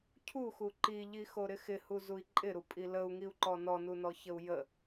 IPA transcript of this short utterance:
cʰ u x u ǃ i ʎ i x o ɾ ɪ x ɪ h u z u i̯ ǃʼ ɪ ɾ u pʼ i l ə u̯ ŋ i u̯ ǃ ɔ n ɔ n u n ɔ ç ə u̯ j ə

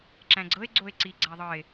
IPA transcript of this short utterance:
ǁ æ̃ ɡ͡ǀ ɤ e̯ ɡ͡ǀ o e̯ ǀ i ɡ͡ǀ æ ðˤ ɤ e̯

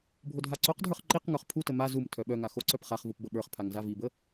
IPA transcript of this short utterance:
bʱ o dʱ a ǀ o q dʱ ə˞ χ ǃ i q ŋ ə˞ χ pʰ u t ə m a z u m tʰ œ ɓ œ ŋ a x o ǀ œ p χ a χ v u p b ə ɓ ə˞ χ pʰ a ŋ z a v i b ə

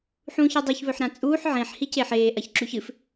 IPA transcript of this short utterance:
ħ ũː ç i dˤ ʉ ç β ɵ ħ ɾ ã t͡sʼ uː ħ ʕ ẽ ħ h i c e ħ eː ʔ ɐ ç ǁ ʉ ç ɨ f

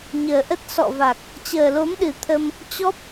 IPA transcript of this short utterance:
ɲ əː˨˩ ʔ ə˦˥ t̚ s ɔ̰˧˨ v a˨˩ k̚ | t͡ɕ əː˨˩ l o˨˦ m ɗ ɨ˨˩ t̪ʰ ə˧ m | t͡ɕ ɔ˦˥ p̚

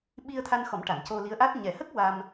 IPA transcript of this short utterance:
ɓ i˧ ə̯ t̪ʰ a˧ n x ɔ˨˩˦ m ʈ a˨˩˨ n c o˧ l i˧˥ ə̯ ʔ a˦˥ t̚ ɲ ɛ˨˩˨ h ə˦˥ k̚ w a˧ m

